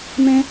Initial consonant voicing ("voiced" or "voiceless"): voiced